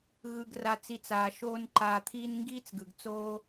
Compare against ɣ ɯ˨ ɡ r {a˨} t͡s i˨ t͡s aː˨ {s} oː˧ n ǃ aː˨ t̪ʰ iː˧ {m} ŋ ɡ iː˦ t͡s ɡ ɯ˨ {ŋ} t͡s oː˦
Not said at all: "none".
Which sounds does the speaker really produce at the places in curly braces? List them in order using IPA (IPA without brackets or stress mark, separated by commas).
a˨, ʃ, n, ɡ